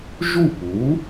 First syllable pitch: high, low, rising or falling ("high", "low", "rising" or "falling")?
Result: falling